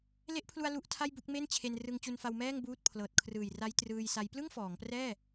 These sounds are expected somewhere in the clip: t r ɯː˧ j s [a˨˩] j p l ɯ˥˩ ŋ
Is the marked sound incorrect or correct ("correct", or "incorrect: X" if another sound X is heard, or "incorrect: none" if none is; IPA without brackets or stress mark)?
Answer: incorrect: a˦˥